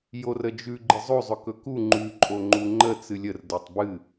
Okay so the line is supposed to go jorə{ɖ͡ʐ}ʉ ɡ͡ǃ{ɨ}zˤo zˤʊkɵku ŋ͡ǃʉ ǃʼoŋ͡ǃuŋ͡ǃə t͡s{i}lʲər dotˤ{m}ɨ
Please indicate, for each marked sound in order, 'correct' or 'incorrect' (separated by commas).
incorrect, correct, incorrect, incorrect